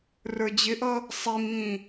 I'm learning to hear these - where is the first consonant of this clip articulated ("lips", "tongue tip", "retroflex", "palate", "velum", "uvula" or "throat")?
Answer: tongue tip